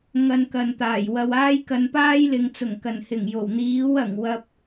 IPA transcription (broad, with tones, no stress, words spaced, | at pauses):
ŋɐ˧nkɐ˨nt̪aː˨˩j wɐ˨w aː˥jkɐ˧npaː˥jlɪ˨˧ŋ t͡sʊ˨˩ŋkɐ˨˩nhɪ˨˩ŋ jo˨˩wn̪iː˨˥wɐ˨˩ŋ wɐ˧p̚